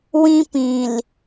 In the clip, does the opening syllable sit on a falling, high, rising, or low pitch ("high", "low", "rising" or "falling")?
high